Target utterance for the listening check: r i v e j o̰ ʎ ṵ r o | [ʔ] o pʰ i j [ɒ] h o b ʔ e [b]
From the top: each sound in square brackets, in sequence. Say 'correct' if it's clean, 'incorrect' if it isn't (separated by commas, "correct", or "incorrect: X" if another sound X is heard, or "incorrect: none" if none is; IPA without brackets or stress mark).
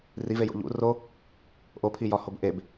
correct, correct, correct